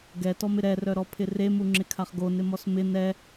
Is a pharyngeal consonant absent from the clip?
yes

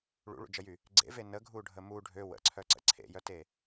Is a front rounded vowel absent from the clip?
no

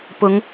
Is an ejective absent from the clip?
yes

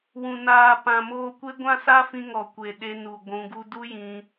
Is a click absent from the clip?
yes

